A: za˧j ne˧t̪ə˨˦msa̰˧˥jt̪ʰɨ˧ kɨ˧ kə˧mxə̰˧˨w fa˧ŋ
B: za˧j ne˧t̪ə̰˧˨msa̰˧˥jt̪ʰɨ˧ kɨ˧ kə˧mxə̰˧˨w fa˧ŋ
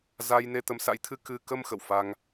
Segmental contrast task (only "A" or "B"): A